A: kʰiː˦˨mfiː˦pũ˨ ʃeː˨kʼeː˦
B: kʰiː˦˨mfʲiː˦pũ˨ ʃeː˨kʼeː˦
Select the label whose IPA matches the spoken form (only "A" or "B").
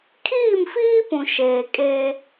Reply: A